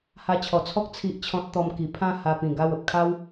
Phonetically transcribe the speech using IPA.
h a˧ t͡ɕʰ ɔ˨˩ t͡sʰ ɔ˦ k̚ t͡sʰ i˦ ʔ t͡ɕʰ ɔ̃˦ t̚ t̪ ɔ˧ m k i˨˩ pʰ ã˥˧ h a˧ p ĩ˨˩ ɡ a˥˧ w ə˨ p̚ kʰ a˦ w

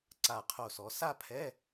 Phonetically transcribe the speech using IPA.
ǀ a˧˩ qʰ o˧˩ s ɔ˩˧ s a˥˧ pʰ ɛ˧˥˧

